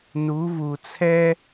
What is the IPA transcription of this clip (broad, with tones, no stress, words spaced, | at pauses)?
nu˨˦vu˨t͡sʰɛ˥